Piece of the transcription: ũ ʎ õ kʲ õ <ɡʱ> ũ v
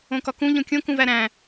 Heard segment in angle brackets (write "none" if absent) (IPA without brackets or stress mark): k